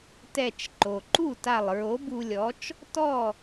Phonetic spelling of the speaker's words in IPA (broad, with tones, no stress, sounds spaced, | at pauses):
t ɛ˧˩ t͡ʃ ǃ o˩ ǃ u˥˨ t a˧˩ lˠ ɹ o˨˥ b u˧ lʲ ɔ˨˥ t͡ʃ | t ɔ˥˨